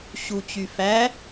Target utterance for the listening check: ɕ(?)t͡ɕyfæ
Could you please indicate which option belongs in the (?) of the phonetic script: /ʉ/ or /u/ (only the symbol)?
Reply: u